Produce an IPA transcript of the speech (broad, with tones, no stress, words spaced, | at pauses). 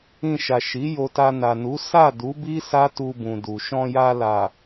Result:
ĩ˧ʃa˨ʃi˨˦ jo˧ta˧na˨nu˨˦ sa˦˨ du˨˦bi˦ sa˦tu˧bũ˨du˨ ʃɔ̃˧ja˧ la˨